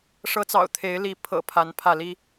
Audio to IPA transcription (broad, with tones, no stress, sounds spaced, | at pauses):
ʂ ɤ˨˦ t͡s ɑ̰˨˩ ʊ̯ t̪ʰ e˨˦ ɪ̯ l i˨˦ pʰ ɤ̰˨˩ pʰ a˨˦ n pʰ ä˥˨ l i˦